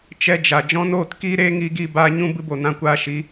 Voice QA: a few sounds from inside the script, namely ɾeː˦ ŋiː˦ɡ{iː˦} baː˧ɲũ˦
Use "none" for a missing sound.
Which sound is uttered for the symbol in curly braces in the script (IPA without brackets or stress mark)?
iː˦